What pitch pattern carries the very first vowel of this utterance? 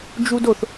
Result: high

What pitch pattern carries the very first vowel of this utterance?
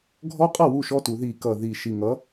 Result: high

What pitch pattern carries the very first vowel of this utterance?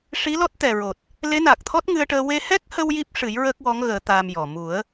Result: rising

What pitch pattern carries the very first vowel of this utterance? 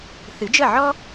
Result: rising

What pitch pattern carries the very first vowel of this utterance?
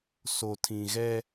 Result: low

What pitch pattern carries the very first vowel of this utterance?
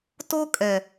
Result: high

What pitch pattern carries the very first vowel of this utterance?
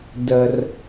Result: low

